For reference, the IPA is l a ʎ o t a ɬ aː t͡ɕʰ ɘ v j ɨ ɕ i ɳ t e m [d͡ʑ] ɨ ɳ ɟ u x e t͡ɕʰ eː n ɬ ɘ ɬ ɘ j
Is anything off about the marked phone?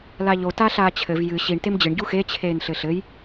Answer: no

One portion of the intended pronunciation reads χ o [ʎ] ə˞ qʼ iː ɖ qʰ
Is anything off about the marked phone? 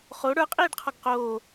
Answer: yes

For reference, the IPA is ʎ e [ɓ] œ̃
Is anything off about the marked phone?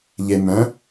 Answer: yes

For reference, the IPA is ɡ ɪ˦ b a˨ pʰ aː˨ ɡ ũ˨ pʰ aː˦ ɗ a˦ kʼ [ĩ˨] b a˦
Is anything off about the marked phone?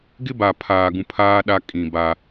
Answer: no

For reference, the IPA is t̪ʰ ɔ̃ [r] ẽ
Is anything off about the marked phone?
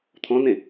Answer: yes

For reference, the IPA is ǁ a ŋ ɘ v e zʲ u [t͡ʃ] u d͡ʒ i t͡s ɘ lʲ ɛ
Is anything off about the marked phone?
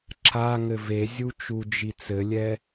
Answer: no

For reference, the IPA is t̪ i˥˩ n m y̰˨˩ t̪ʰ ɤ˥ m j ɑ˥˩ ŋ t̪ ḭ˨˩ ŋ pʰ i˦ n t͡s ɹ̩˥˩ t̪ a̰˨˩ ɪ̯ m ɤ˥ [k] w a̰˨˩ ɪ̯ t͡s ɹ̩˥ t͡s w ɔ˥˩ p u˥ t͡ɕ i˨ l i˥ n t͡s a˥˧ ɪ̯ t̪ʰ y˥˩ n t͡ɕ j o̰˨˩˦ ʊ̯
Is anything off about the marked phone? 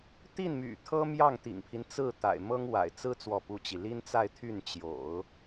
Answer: yes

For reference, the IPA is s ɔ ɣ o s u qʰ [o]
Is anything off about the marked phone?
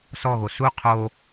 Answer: no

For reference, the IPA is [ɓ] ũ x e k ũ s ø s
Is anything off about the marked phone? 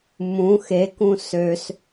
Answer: yes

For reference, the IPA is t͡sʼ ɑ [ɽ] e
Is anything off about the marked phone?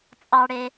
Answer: no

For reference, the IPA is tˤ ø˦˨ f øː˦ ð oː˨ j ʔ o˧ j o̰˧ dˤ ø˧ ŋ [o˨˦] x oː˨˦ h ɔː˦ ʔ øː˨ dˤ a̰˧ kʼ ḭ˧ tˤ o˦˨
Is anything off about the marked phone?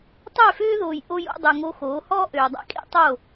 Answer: yes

